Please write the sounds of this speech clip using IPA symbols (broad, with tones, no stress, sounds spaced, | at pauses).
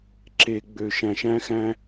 ǁ e˨ ɡ͡b ø˨ ʃ æ̃˨ ʃ æ̃˦ x æ̃˦